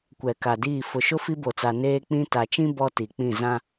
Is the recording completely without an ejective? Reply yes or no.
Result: yes